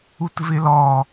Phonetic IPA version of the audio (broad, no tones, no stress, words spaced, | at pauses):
utvɪlɔ